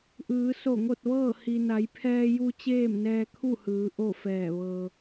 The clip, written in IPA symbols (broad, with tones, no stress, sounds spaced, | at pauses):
ʔ ɯː˩˧ s o˧˩ ŋ o˥˨ t̚ ʋ ɤː˥˨ h i˩ n a˩˧ j pʰ ɛː˧ j u˧ t͡ɕ eː˥˨ m n ɛː˧ kʰ u˥˨ h ɯː˩˧ ʔ o˥˨ f ɛː˧˩ ʋ ɤː˩